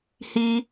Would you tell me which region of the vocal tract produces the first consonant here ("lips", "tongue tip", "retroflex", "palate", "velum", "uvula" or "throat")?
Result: throat